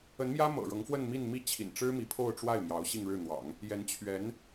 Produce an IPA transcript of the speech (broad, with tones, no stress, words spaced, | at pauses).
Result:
ə˧˥nmjä˥ mɤ̰˨˩ɻɤ˧˥ŋfwə˥˧nmi˥˧n mi˥˩t͡ɕʰḭ˨˩nʈ͡ʂɻ̩˥ mi˧˥pʰo˥˧ʊ̯ʈ͡ʂwa˥˩ɪ̯mjɑ˧˥ʊ̯ ɕi˥˧ŋɻɻ̩˥˩n̪wɑ̰˨˩˦ŋ | jɛ˧˥n t͡ɕʰɥɛ˧˥n